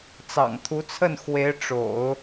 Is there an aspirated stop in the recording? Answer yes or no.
yes